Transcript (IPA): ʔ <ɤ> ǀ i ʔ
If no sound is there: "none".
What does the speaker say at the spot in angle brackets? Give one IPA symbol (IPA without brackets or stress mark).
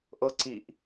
ɤ